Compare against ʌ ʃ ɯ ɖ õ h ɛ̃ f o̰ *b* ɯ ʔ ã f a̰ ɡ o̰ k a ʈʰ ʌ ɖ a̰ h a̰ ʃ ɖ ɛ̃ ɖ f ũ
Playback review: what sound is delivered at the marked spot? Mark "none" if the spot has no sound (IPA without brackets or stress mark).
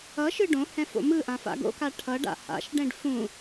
m